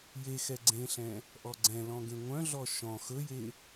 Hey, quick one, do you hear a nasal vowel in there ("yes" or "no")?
yes